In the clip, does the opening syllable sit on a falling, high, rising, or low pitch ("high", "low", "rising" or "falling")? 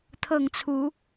falling